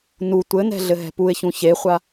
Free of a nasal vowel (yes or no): no